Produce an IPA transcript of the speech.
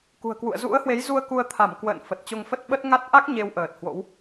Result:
kṳ˨˩ə̯kwṵ˧˨ə̯ zṵ˧˥ə̯hwe˨˦jzu˧ə̯ ku˧ə̯t̪ʰa˧˩mkwə̰ː˧˨n fə˨˩t̚t͡ɕo˧ŋfə˦˥t̚ɓə˦˥t̚ ŋa˦˥t̚ ʔa˦˥k̚ ɲe˧wʔəː˨˩t̚hwo̰˧˥w

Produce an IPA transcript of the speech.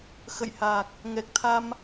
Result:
xə̰˧˨jha˨˩k̚ | ŋɛ˨˩k̚t̪ʰa˧m

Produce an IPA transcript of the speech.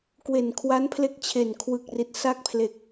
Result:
kwe˨˩nkʰwa˦˥n pʰle˦˥k̚t͡ɕʰe˨˩nkʰwɯ˨˩k̚ri˨˩t̚ sa˥˩k̚pʰle˨˩k̚

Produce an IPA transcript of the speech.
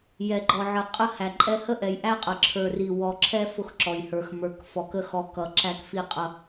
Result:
jɛ˨ɡ͡ǃɔ˨ʕə˨ qʼə˦ hæ˨ǃʼɛ˦ hə˦ʔɛ˨jʔæ˦qʼə˨ ǁʰə˞˨ri˨wɔ˨ǁʰɛ˦ fʊ˦xǁɔ˨jhə˞˨x mə˞˨kfɔ˨kə˦˨xɔ˨ kʌ˨˦ǁæ˦kfi˦ qʼʌ˦

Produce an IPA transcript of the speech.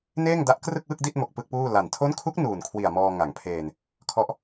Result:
neː˥˩ŋda˦˥ʔ krɯ˥˩k̚wɯ˥˩k̚di˥˩t̚mo˨˩k̚ pɯ˥˩k̚puː˥˩la˨˩n tʰo˦˥nkʰu˦˥k̚ nuː˨˩nkʰwi˨˩a̯mɔː˧ ŋa˩˦ŋpʰeː˧n | kʰɔ˦˥ʔ

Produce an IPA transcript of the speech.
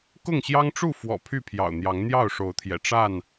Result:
kʊ˥˨ŋɕjɑ˦ŋʈ͡ʂu˥˨fwɔ̰˨˩ pʰy˥˨pʰjɑ̰˨˩ʊ̯n̪jɑ˨˦ŋ n̪jɑ˥˨ʊ̯ʂo˨˦ʊ̯t̪ʰjɛ̰˨˩ ʈ͡ʂa˥˨n

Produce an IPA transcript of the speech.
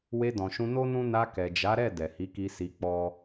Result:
we˧dɔ̃˨ʃũ˧ no˦nũ˦ na˧ kɛ˨d͡ʒa˨˦ ɾɛ˦˨ dɛ˨hi˨˦ki˧ si˧k͡pɔ˦

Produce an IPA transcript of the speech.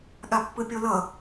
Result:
ɠapːɯpʲolʌ

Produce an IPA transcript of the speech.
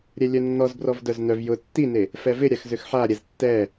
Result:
ɾʲɛlʲœnːɔz brɔvdœznœv jʊ tːine | fɛvɪ ɾʲaxzʏxħaɾʲɛz tːɛ

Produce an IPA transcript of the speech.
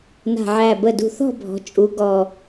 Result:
na̤˧˩ʕæ˧˩ bə˧˩dṳ˧˩ θɔ̤˥˧bʱɔ̤˩˧ t͡ʃʼu˩˧ ɡɔ˧˩

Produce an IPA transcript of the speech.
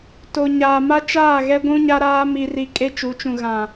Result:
to˨ɲaː˨ ma˦t͡ʃaː˦˨ɣɛ˦ ɡʷũ˦ɲa˦ɾaː˦ mi˦ri˦ kʼe˦t͡ʃu˨˦t͡ʃũ˨ ɣã˨

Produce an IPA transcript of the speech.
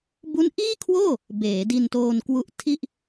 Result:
bu˦˥nʔiː˥˩kʰwoː˥˩ | beː˩˦di˧ntoː˧n kwu˦˥ʔtʰi˥˩ʔ

